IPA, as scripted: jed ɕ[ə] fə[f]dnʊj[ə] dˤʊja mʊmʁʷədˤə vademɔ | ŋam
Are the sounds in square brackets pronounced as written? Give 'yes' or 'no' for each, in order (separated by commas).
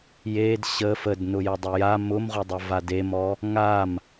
yes, no, yes